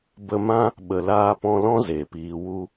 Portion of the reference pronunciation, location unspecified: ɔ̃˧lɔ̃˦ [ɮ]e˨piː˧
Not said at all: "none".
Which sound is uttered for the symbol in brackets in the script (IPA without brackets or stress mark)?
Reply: z